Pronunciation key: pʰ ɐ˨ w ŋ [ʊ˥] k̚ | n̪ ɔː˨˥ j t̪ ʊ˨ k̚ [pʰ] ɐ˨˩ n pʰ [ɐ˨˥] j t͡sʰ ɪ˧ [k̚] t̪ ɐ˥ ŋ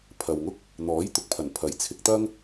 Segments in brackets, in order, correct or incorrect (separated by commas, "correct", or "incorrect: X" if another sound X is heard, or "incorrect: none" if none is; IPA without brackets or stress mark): correct, correct, correct, correct